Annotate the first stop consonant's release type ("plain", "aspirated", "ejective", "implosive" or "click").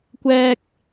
plain